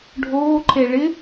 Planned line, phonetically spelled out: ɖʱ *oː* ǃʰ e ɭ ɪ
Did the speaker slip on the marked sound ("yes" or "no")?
no